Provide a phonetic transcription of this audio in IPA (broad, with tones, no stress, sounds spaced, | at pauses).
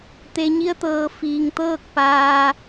t̪ e˩ ɲ i˧ ə̯ t̪ ɤː˩ f iː˩ ŋ t̪ ɤː˥˨ k̚ p aː˧